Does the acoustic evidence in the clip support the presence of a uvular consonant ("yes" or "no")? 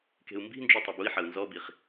yes